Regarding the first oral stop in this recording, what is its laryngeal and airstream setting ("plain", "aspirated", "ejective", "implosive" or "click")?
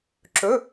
click